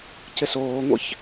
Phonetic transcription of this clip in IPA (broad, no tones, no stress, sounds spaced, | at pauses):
c ɪ s oː ŋʷ ḭ ç